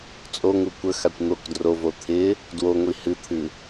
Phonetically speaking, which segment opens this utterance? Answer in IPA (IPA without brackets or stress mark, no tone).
t͡sʼ